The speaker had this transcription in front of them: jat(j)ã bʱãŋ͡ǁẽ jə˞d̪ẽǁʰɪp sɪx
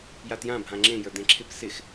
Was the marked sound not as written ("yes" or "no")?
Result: no